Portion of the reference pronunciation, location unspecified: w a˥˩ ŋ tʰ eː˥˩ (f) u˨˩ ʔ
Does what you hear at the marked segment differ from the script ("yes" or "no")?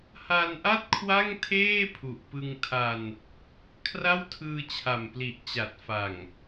yes